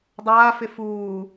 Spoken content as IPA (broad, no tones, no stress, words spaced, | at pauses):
dˤaːfɪ fuː